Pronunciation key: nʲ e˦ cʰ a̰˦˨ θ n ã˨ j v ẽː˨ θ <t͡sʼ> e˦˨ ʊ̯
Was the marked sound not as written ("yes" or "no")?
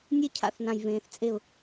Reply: no